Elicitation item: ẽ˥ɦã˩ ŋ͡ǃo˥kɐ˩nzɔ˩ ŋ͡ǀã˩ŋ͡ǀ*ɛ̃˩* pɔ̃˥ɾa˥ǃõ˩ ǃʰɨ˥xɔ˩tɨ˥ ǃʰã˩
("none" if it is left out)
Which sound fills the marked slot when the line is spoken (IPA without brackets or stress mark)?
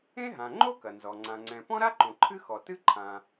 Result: ɛ̃˩